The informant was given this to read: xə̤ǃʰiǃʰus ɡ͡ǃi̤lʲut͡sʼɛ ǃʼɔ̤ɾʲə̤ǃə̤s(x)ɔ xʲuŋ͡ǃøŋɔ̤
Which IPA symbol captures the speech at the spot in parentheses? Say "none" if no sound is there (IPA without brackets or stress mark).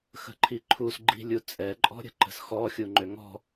x